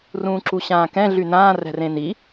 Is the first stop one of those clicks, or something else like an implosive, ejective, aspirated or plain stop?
click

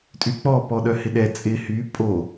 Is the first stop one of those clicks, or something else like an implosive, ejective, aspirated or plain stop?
ejective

